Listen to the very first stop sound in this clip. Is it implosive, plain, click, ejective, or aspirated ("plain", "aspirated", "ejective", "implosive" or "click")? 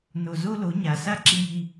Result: click